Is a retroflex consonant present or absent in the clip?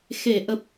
absent